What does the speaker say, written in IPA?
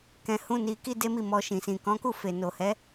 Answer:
k ɛ̃˧ h ũ˦ n i˧ k i˦ d e˦ m i˦˨ m ɔ˧ ʃ ĩ˨ s ĩ˨ k ɔ̃˨˦ k u˦˨ f e˨ n o˨ h ɛ˨˦

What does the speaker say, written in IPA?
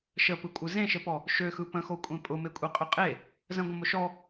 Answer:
ʃ ə p ɯ kʷʼ ɯ z ẽ ʃ ə p ɔ | ʃ ø x ɯ p ə̃ x o kʷʼ ẽ pʼ ʊ m e kʷʼ e qʼ ø qʼ e | z ə̃ ɡʷ ə̃ m ʊ ʃ ɔ

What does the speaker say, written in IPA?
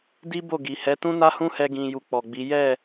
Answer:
d i˦ b o˦˨ ɡ i˨ h ɛ˨˦ t ũ˦ n a˦ h ũ˦ h ɛ˧ ɡ ĩ˨ j u˧ k͡p ɔ˨ ɡ͡b i˨˦ j ɛ˦˨

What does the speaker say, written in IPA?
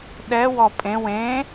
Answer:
ɗ ɛ w ɔ pʼ ẽ w ẽ

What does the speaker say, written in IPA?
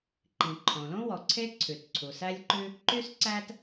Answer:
ǃ ĩ˩ ǃʰ õ˩ l õ˥ w ɔ˩ ǀʰ e˥ ǀʰ ʉ˩ t ǀʰ u˩ s æ˥ lʲ ǃ ʉ˥ | ǃ y˥ s ǀ æ˥ t

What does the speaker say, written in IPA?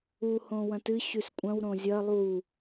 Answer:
u h õ w ɐ̃ t ɨ ɕ ʉ s kʷʼ ɐ̃ w ɾ õ zʲ ɐ lˠ u

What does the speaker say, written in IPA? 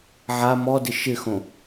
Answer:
ʕ a m ɔ d ɪ ʃ ɪ x õ

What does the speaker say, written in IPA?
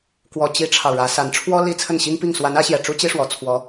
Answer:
k w ɔ˨˩ t͡ɕ i˥ ʈ͡ʂʰ ɑ˨ ʊ̯ ɻ ä˧˥ s a˧˥ n ʈ͡ʂʰ w ɔ˥ l i˥ t͡sʰ ə˥˩ n ɕ i˥ ŋ p i˥˩ ŋ s w a˧˥ n ä˧˥ ɕ j ɛ˨˩ ʈ͡ʂ u˥ t͡ɕ i˥ ʂ w ɔ˨˩ t͡sʰ w ɔ˧˥

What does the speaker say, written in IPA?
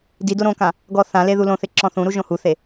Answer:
d i d o ɾ õ k ã | ɡ ɔ θ ã l e ð u l õ θ ɪ ǁ ɔ̃ θ ũ ɾ u ʒ õ h u θ e

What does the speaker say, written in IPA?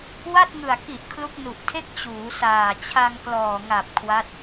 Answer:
w a˥˩ t̚ ŋ ɯ˨˩ a̯ k i˨˩ ʔ kʰ l u˦˥ k̚ n u˨˩ ʔ tʰ e˥˩ k̚ t͡ɕ uː˩˦ s aː˨˩ t͡ɕʰ a˧ ŋ k l ɔː˨˩ ŋ a˨˩ p̚ kʰ w a˦˥ t̚

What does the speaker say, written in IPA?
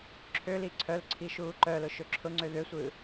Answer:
ǁʰ ø l i ǀʰ œ l ǀʰ i ʃ uː ǃ œ l ʊ ʃ ø ǁʰ ʊ ŋ͡ǀ ø ð ø sʷ ɯ

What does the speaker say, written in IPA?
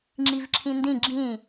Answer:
ŋ͡ǁ i v ǁʰ ĩ n d ĩ ɡ͡ǁ ĩ

